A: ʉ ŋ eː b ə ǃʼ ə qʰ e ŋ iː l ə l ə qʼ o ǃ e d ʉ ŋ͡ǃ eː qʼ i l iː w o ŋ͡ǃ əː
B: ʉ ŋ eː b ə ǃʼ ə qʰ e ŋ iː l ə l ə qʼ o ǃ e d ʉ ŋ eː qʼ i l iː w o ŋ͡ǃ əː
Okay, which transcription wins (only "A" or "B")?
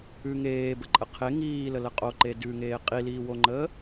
B